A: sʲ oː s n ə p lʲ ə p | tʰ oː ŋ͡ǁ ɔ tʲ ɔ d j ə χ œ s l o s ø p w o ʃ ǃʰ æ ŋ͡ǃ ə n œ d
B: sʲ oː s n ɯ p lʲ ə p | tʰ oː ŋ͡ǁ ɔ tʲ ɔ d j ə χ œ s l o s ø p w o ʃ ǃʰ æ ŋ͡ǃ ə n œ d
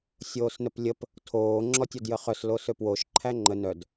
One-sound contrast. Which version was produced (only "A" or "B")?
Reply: A